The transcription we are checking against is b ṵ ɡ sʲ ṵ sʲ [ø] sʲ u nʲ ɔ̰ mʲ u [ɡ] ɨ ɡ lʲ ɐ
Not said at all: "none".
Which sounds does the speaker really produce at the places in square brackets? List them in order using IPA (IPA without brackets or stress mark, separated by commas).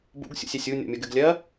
ɛ, ɡ